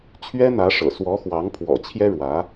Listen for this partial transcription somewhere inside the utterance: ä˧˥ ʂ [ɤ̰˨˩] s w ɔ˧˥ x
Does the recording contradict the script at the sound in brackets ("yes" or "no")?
no